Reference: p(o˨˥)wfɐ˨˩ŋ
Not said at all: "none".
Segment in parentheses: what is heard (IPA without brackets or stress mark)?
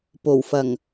o˨˩